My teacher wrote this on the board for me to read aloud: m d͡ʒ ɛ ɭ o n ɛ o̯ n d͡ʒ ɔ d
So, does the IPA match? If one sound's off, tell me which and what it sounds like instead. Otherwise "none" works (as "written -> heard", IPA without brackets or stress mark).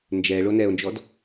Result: m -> n